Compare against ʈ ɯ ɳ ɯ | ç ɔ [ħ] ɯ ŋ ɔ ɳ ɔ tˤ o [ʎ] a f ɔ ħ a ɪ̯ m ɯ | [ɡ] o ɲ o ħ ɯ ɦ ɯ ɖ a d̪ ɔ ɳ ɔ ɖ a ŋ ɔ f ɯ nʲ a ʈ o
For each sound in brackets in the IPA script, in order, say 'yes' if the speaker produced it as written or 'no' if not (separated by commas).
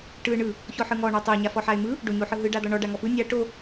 yes, no, no